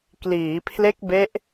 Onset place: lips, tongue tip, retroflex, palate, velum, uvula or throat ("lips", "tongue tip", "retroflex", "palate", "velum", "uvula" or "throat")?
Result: velum